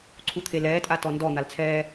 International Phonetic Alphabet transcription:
ǀʰut̪ʰelɛːtʼa tɔndɔ n̪alt͡sʰɛː

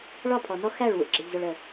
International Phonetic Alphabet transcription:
ɭɒ˦˨pʰɔ˨nɔ˦ xæ˦˨ɭwṵ˨ ɡ͡ǁə˨ʎzʊ˨ɭə˨

